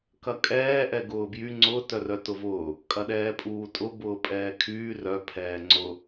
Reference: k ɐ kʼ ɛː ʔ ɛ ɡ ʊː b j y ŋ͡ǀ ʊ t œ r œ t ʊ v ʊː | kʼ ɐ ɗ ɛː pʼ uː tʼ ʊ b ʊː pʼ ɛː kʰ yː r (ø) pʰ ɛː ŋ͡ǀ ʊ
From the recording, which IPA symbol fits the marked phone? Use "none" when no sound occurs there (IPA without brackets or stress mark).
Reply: œ